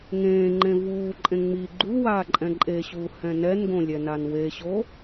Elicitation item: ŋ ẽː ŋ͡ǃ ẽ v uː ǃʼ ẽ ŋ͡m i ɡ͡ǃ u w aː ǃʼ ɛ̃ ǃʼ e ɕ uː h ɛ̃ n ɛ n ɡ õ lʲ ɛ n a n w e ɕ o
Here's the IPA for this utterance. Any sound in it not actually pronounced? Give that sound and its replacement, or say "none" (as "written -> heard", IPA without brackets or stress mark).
none